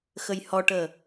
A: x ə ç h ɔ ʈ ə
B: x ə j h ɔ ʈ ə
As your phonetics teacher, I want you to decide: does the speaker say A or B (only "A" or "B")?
B